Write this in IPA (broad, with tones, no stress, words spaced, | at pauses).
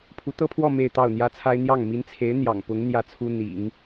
pʰu˧˥t̪ɤ˥pʰwɔ˥˧ me˥˧ɪ̯t̪ɑ˥˩ʊ̯n̪jä˥t͡sʰa˥ɪ̯ n̪jɑ˥˩ŋ mi˧˥nt͡sʰe˧˥ɪ̯ n̪jɑ̰˨˩ŋpʊ˧˥ŋ n̪jä˥˩t͡sʰu˥ n̪ḭ˨˩˦ŋ